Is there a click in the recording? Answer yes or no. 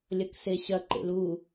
yes